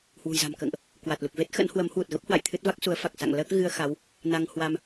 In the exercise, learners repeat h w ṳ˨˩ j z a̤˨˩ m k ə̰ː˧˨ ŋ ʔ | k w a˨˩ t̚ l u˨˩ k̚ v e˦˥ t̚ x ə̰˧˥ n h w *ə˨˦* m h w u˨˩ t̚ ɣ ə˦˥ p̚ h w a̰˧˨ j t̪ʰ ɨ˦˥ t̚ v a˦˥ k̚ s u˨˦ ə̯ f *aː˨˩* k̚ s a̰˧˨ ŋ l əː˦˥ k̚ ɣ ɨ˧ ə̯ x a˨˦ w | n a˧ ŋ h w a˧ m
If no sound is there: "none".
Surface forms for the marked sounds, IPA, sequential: ə˨˦, a˨˩

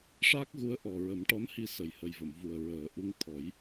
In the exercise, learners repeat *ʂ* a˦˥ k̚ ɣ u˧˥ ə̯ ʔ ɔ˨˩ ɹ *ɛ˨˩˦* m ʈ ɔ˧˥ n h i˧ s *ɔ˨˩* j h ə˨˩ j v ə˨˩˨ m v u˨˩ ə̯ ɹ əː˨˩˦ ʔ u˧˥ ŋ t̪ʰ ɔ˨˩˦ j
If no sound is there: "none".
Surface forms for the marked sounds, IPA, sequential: ʂ, ə˨˩˦, ə˨˩

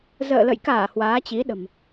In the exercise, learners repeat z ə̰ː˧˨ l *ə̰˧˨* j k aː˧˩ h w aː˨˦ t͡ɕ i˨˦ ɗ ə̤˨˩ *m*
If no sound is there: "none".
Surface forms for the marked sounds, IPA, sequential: ə̰˧˨, m

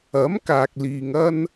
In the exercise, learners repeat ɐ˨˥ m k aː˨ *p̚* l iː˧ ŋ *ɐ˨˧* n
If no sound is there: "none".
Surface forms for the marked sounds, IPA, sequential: k̚, ɐ˥

